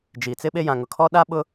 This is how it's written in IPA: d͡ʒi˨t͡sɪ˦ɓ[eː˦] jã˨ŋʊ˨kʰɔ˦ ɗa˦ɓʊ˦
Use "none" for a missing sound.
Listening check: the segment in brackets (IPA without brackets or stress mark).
e˦